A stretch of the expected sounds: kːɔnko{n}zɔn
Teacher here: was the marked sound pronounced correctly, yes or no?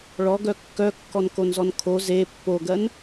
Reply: yes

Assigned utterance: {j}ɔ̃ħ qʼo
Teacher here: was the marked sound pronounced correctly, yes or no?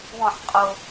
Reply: no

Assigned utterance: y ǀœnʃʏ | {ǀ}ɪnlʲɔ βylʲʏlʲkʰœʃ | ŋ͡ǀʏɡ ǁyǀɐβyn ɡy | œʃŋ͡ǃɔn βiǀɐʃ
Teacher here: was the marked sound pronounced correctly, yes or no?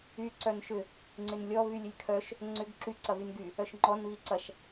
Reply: no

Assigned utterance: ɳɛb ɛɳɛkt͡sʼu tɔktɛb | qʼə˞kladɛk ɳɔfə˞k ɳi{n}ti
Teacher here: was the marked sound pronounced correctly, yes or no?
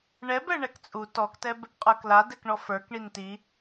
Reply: yes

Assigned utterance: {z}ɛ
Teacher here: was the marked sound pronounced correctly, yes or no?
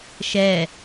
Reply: no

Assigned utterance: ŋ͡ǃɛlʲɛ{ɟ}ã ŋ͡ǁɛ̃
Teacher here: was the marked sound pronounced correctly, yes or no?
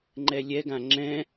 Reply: no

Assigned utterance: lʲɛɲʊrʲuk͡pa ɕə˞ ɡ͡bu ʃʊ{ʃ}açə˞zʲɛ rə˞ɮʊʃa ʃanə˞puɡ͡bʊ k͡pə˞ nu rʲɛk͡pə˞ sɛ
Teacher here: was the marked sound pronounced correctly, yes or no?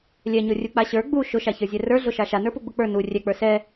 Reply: yes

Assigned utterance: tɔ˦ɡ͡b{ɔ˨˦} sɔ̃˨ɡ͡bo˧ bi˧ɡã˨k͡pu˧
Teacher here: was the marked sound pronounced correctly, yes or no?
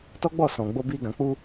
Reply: no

